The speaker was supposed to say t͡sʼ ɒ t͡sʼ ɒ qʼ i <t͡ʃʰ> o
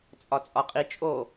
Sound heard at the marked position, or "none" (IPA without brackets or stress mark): t͡ʃʼ